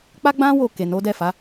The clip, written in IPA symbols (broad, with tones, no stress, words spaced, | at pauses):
k͡pa˦ɡ͡bã˦ wo˦˨ ke˨no˨˦dɛ˦˨fa˨˦